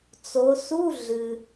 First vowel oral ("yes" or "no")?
yes